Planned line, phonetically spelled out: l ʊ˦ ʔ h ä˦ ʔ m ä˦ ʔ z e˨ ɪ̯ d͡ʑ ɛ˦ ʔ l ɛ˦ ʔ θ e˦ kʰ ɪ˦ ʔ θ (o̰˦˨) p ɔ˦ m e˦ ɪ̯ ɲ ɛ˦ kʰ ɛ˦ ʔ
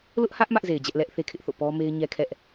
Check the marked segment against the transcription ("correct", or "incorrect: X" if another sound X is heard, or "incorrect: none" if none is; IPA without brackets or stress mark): correct